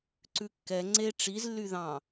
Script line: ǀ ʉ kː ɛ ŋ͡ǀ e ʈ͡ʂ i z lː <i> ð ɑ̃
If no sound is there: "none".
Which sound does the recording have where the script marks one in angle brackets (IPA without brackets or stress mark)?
y